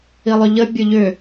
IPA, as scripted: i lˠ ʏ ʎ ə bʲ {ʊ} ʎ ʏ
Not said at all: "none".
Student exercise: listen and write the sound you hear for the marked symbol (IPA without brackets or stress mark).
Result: ʊ